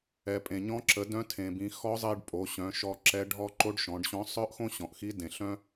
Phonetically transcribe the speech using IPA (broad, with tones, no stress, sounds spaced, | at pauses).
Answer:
ɛ˩ pʼ ẽ˩ ɲ ɔ̃˧˥ ǁ ə˩˧ d œ̃˧˥ tʰ ẽ˩ b ĩ˩˧ x ɔ˧˥ zˤ e˧ ɖ pʼ o˩˧ ɕ œ̃˩˧ ʃ ɔ˧ ǁ ɛ˧˥ ɖʱ ɔ˥ ǃ o˧˥ ɖ ʃ ɔ̃˩˧ ɖ ɕ ɔ̃˧˥ sˤ œ˥ ʔ x õ˥ ɕ ɔ̃˩ ʔ x i˧˥ d ẽ˩ ɬ œ̃˥